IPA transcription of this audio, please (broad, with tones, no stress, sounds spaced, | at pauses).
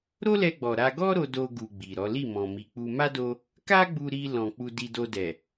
ɾ o˦ l ɛ˧ ɡ͡b ɔ˨ ɾ a˧ ɡ ɔ˦ ɾ o˧ d o˧ ɡ u˨ ɡ͡b i˨ ɾ ɔ˨˦ l i˦˨ m ɔ̃˨ m i˨ k͡p u˧ m a˦ d o˧ | k a˦ ɡ͡b u˧ ɾ i˧ l ɔ̃˨ k͡p u˧ d i˧ d o˧ d ɛ˨